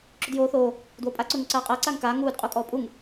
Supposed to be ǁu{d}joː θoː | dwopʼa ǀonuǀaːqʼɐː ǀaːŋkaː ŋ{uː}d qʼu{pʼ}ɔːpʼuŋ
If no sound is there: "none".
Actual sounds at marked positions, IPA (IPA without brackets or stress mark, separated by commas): d, uː, kʼ